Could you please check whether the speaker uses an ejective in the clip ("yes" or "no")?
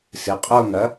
yes